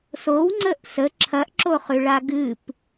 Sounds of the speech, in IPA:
s o w ŋ͡ǀ ə ʔ s ə ǁʰ ɐ ʔ ǁ o χ ʉ ɭ a ɡ ɨ p

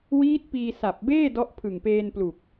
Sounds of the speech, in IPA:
w iː˦˥ t̚ p iː˧ s a˨˩ p̚ b eː˥˩ d ɔ˦˥ ʔ pʰ ɯ˨˩ ŋ p eː˧ n p l u˨˩ k̚

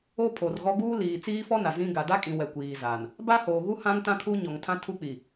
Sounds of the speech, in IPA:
o˦ pʰ o˨ r ɣ ɔ˦ ɡ uː˦ l iː˨ t͡s iː˦ f ɔ˦ n a˨ z ĩ˦ ɡ a˨ d a˦ kʼ ĩ˨ w ɛ˨ kʷ iː˨ z a˨ n | b a˦ h oː˨ ɣ u˦ h ã˦ ŋ t ã˦ kʰ u˦ ɲ ɔ˨ ŋ tʰ ã˦ tʰ u˦ k͡p i˨

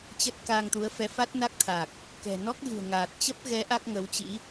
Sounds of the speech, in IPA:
t͡ɕ ə˦˥ t̚ k aː˧ ŋ t̪ u˨˦ ə̯ f ɛ˨˦ f a˦˥ t̚ n a˦˥ k̚ t̪ʰ a˨˩ k̚ | k ɛ̤˨˩ n ɔ˦˥ k̚ ɣ ɨ̤˨˩ ə̯ ŋ aː˨˩ t̚ t͡ɕ ə˦˥ p̚ ɣ ɛ˨˦ ʔ a˦˥ k̚ ŋ ə˨˦ w t͡ɕ ḭ˧˥

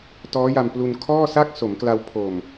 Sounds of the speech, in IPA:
t ɔː˦˥ j a˧ m p l u˧ n kʰ ɔː˥˩ s a˥˩ k̚ s o˩˦ m k l a˧ w pʰ o˨˩ m

